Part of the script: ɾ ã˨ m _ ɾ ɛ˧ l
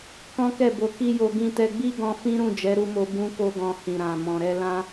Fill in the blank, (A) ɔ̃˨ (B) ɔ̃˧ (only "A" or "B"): A